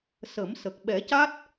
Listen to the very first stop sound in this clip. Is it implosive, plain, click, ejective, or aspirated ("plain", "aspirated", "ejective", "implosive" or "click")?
plain